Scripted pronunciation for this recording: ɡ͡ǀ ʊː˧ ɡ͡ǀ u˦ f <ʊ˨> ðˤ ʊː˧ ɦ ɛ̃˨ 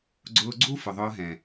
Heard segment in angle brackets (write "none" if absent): ʊ˨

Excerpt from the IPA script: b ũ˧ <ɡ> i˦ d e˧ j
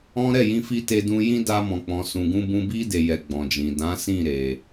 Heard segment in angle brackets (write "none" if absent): b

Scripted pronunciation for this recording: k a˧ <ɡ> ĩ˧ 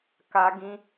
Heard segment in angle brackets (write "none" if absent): ɡ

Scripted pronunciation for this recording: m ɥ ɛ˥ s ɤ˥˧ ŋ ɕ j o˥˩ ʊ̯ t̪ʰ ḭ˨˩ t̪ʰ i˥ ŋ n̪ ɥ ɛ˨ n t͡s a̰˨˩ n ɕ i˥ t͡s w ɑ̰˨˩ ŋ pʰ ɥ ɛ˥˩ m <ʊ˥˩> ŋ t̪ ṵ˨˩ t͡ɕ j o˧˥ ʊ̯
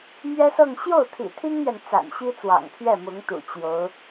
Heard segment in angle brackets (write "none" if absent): ʊ˧˥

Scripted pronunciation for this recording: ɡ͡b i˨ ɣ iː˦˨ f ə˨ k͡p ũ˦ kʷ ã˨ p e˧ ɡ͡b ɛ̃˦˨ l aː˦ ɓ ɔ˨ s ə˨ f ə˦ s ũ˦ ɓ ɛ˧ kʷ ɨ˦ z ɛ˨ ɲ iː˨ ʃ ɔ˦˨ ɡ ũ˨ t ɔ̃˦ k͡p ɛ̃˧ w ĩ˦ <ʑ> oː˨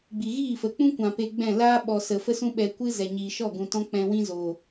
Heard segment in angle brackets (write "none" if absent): z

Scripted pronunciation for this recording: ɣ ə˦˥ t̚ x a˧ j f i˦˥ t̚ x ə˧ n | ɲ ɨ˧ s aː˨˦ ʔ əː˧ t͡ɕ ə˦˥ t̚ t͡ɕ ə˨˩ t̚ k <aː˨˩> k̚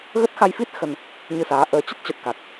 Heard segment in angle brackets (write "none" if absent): a˨˩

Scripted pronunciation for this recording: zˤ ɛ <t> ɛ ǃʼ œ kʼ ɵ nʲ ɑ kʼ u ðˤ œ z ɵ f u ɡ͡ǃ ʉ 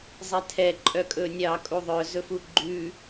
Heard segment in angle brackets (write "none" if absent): tʰ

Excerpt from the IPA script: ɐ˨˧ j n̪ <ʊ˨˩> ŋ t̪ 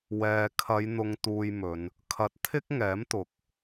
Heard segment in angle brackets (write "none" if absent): ʊ˧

